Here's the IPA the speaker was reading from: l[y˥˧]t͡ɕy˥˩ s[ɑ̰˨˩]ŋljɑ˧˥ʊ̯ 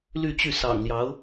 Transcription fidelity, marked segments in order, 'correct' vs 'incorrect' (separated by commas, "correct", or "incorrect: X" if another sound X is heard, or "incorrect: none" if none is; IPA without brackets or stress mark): correct, correct